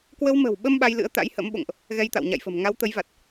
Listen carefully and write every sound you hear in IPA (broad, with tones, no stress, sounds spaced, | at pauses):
k w ə˧ w m ə̤˨˩ w ɓ ə˧ m ɓ a˧ j l ɨ̰˧˥ ə̯ t̪ a̰˧˥ j h ə̰˧˥ m ɓ o̰˧˨ ŋ ʔ | ɣ ɛ˧ j t̪ a̰˧˨ w ɲ a̰˧˨ j f ə̤˨˩ m ŋ a˨˦ w t̪ ə˨˦ j v a˨˩ t̚